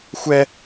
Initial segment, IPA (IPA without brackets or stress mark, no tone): xʷ